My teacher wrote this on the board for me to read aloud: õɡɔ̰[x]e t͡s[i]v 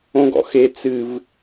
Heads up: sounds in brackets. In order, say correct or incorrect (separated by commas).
correct, incorrect